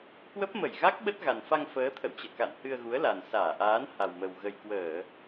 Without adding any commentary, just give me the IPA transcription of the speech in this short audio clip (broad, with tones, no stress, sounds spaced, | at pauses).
k w ə˦˥ p̚ m ə˧˩ j ɣ a˦˥ k̚ ɓ ə˦˥ t̚ ɣ a˨˩ n f a˧ ŋ f əː˨˦ t̪ʰ ə̰˧˨ w t͡ɕ ə̰ː˧˨ k a̰˧˨ n h ɨ˧ ə̯ ɣ u˨˦ ə̯ l a˨˩ n s aː˧˩ ʔ aː˨˦ n h a˨˩ w m ə˨˩ w ɣ ə˨˩ j k w əː˧˩˨